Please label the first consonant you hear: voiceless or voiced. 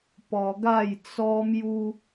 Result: voiceless